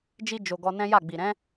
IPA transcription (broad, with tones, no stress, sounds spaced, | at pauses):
d͡ʒ i˧ d͡ʒ o˨ ɡ ɔ˧ n ɛ̃˦ j a˦˨ ɡ͡b i˨ ɾ ɛ̃˨˦